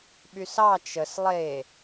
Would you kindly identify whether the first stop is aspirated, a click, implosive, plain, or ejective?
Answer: implosive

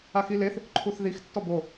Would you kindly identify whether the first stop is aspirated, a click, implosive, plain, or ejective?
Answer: click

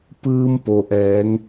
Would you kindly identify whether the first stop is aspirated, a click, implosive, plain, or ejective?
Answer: plain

